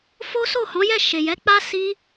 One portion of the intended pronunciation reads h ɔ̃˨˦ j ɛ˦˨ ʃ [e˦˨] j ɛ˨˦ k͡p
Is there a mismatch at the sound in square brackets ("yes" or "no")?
yes